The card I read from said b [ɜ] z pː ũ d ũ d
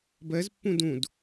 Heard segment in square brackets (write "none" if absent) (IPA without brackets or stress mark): ɜ